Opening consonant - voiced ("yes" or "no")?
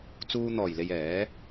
no